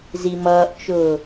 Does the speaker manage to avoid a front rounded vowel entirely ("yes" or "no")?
yes